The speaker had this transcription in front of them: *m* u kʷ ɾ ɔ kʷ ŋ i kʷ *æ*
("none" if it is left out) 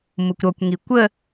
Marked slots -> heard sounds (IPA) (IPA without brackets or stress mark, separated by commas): m, ə